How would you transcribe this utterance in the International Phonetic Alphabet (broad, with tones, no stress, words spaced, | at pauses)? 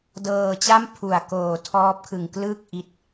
dɤː˧t͡ɕa˥˩m pʰu˨˩a̯koː˨˩ tʰɔː˦˥p̚kʰɯ˨˩ŋ klɯ˥˩k̚ ʔi˦˥t̚